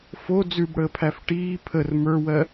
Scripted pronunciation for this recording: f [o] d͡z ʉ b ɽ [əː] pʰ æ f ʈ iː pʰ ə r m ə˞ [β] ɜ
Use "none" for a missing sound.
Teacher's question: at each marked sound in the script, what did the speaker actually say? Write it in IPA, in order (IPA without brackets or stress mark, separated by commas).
o, əː, w